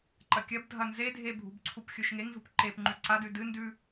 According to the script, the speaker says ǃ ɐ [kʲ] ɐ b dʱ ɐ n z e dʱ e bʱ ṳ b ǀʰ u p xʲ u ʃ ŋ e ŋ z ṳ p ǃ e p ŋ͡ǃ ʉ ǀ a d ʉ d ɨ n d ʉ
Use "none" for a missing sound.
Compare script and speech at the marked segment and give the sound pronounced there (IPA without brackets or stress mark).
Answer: kʲ